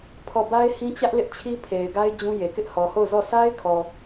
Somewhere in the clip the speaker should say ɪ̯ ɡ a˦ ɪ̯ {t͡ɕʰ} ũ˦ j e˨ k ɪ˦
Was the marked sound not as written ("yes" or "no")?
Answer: yes